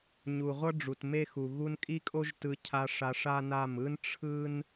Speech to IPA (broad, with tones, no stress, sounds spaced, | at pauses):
ɲ u˨ ʁʷ ʌ˦ ɖ͡ʐ u˨ t m e˦ x u˨ ɣ u˧ n kʼ i˦ kʼ o˦ ʒ t ɯ˧ cʰ a˧ ʂ a˧ ʂ a˦ n a˦˨ m ɯ˦ n ʈ͡ʂʰ ɯ˦ n